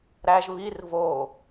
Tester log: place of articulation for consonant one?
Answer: alveolar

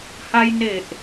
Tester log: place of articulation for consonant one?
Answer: glottal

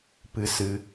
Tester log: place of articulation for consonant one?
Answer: labial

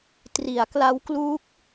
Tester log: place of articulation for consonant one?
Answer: alveolar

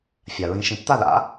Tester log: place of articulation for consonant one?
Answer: labial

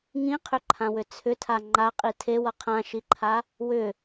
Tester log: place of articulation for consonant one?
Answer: velar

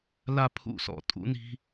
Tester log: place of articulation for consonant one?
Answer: alveolar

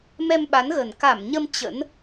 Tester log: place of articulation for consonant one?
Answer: labial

